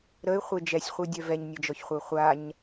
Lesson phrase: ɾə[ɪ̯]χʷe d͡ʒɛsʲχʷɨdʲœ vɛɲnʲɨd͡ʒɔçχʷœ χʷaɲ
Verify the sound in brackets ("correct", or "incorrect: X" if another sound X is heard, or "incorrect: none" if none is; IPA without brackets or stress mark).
correct